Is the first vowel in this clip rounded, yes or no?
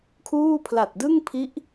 yes